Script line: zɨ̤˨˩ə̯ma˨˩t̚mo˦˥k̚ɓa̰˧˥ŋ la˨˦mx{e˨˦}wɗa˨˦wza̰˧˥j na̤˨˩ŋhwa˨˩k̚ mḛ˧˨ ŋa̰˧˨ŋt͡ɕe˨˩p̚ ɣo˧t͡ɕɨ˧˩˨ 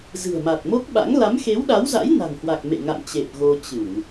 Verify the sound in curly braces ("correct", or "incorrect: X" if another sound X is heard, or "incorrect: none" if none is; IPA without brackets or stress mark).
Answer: correct